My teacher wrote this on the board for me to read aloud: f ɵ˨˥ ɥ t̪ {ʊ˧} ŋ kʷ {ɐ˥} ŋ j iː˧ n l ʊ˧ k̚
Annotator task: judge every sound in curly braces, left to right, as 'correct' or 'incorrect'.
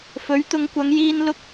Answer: incorrect, incorrect

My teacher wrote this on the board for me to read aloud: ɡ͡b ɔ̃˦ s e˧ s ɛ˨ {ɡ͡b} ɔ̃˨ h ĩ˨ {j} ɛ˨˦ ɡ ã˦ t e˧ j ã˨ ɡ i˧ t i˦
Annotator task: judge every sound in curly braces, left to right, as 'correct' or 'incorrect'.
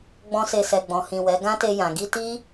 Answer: correct, incorrect

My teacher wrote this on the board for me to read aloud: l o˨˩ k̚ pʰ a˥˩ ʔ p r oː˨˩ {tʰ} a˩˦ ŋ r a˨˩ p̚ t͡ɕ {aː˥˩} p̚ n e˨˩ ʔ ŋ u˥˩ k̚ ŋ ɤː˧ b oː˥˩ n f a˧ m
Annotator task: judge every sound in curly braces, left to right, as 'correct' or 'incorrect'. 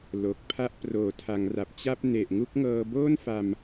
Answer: correct, incorrect

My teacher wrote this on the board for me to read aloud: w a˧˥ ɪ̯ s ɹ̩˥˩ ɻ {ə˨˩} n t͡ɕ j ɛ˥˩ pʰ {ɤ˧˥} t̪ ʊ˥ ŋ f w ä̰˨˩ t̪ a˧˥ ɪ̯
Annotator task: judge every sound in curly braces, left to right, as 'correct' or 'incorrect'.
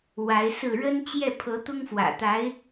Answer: incorrect, correct

